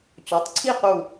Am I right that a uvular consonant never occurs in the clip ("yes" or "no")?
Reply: no